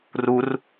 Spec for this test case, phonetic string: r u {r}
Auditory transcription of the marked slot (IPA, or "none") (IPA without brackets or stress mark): r